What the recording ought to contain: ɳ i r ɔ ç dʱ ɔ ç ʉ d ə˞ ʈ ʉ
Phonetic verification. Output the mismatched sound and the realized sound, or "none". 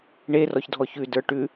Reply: i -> e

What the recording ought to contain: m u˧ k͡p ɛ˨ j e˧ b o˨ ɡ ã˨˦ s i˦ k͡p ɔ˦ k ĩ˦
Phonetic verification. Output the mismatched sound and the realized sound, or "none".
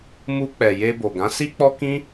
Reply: none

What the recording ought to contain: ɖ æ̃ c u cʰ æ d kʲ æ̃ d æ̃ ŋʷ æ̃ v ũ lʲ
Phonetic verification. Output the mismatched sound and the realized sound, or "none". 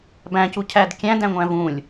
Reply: ɖ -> b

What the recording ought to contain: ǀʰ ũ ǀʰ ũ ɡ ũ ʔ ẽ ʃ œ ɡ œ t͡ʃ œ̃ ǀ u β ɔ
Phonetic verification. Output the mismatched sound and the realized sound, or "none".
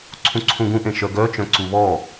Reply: none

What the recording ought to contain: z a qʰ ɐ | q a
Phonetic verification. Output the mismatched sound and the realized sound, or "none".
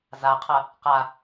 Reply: none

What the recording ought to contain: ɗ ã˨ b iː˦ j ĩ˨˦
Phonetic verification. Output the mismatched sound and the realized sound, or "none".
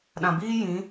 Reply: none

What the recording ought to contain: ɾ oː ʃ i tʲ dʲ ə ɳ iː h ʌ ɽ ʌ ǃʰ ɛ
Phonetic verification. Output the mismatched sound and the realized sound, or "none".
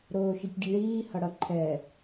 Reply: none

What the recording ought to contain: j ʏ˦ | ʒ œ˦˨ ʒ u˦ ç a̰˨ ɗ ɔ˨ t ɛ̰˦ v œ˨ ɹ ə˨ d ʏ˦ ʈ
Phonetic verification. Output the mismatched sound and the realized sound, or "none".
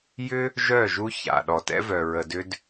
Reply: ʈ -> d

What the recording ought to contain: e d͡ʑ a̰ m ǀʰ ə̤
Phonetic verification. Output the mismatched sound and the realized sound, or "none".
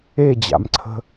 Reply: none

